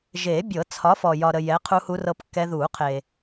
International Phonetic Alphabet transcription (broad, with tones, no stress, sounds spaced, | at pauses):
ʒ eː˨˩˦ bʲ ɤ˨˩˦ t͡sʰ ɒ˨˥ f ɔ˨ j ɒ˨ ɾ ə˨ j ɛ˨˥ qʰ u˦˥ h u˦˥ r ɤ˦˥ p kː ɛ˦˥ ð uː˨˩˦ qʰ eː˨